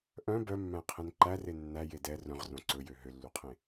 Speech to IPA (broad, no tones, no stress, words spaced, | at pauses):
ʔœ̃ bœmːæ̃qʰẽn ǃære nːæje dɛ rœ̃ʁrõ ǀɵjø ɦølːuqʰẽ